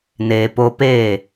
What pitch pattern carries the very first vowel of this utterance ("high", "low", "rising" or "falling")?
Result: low